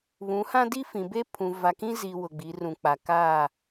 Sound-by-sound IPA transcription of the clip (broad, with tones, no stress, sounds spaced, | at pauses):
β ũ˨˦ h ã˦ d i˦ f ĩ˨ b e˦ pʰ ũ˨ v a˨ k ĩ˦ z i˨ w ʊ˨ ɡ͡b i˨˦ r ũ˨ k͡p a˨ k a˦˨